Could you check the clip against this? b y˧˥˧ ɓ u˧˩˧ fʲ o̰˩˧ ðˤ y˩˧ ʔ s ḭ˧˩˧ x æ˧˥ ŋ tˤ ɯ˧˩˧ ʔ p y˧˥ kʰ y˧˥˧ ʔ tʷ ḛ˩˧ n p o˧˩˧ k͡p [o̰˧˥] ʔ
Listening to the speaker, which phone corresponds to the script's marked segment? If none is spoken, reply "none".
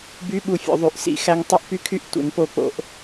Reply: o̰˩˧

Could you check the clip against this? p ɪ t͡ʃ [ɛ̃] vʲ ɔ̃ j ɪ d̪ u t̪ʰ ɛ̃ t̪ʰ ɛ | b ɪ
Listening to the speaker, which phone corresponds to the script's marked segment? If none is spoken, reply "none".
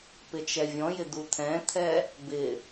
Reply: ɛ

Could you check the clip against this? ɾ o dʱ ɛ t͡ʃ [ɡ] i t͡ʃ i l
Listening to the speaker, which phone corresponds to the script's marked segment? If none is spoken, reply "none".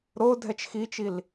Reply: x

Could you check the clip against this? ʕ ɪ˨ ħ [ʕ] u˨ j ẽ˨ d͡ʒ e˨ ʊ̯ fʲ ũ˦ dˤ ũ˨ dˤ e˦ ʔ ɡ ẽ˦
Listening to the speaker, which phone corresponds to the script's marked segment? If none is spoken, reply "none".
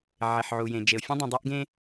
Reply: ʕ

